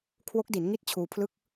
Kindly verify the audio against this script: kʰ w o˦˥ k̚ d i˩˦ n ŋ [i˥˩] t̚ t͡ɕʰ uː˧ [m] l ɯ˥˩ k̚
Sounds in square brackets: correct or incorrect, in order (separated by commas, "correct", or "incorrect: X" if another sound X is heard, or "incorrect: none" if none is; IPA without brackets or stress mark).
correct, incorrect: pʰ